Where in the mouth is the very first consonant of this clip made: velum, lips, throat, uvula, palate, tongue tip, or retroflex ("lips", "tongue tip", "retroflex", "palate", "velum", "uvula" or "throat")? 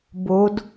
lips